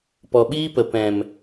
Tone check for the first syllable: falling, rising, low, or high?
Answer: low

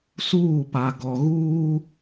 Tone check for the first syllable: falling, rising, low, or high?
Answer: falling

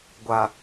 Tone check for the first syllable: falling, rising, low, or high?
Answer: low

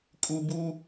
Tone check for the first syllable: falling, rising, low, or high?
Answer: high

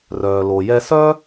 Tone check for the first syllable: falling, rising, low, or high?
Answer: low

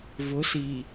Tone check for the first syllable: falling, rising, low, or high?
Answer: rising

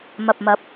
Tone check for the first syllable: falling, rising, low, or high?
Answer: low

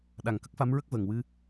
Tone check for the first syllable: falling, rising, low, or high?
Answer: low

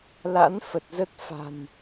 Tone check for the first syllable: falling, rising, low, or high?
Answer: rising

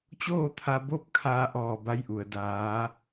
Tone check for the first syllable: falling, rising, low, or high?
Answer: falling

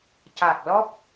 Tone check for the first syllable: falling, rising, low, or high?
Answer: low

